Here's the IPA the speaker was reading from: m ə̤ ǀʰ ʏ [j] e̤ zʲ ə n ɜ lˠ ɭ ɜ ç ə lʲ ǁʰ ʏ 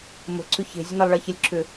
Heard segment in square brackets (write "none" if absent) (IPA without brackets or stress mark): ç